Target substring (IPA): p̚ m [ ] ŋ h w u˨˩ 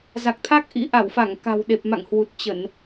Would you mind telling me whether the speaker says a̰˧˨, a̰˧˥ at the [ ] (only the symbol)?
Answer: a̰˧˨